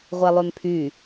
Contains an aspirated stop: yes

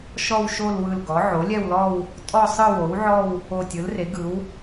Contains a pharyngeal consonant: yes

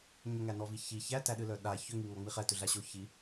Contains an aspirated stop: no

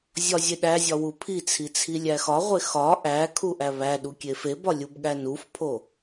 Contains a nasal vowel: no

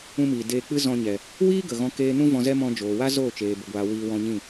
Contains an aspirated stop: no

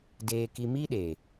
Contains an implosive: yes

